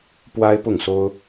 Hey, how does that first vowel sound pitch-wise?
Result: high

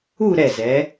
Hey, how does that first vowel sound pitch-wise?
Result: falling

